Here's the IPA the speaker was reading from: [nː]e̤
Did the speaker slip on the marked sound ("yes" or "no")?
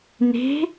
yes